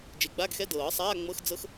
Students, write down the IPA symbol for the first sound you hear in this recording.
d͡ʒ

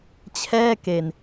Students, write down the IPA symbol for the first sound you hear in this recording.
t͡ɕʰ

